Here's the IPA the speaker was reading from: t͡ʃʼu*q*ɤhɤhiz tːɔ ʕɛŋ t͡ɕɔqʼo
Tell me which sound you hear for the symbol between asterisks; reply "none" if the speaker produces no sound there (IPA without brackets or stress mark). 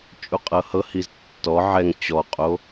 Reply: qʼ